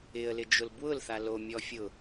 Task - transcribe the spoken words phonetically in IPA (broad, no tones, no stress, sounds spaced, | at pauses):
ɪ ə̯ l ɪ d͡ʒ ʊ l b w ʊ l θ a l o mʲ ɔ fʲ ʊ